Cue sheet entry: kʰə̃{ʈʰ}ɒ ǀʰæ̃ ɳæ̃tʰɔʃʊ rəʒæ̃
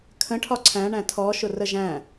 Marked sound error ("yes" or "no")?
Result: no